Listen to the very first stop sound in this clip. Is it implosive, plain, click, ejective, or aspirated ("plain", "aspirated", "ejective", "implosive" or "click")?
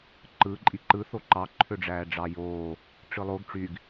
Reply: click